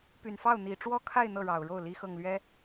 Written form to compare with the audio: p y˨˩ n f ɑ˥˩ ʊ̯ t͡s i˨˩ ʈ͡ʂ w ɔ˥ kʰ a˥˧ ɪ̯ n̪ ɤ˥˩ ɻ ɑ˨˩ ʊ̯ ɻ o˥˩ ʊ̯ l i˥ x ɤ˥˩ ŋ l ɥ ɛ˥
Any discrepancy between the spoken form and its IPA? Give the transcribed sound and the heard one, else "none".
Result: t͡s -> n̪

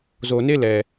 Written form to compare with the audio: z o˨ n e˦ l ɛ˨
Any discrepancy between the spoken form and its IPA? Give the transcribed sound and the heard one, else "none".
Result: none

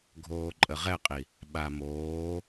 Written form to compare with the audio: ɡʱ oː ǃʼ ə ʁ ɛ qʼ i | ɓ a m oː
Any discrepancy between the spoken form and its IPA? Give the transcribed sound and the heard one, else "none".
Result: none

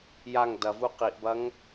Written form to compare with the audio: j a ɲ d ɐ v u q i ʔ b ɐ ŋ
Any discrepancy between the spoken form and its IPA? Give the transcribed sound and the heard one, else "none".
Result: ɲ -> ŋ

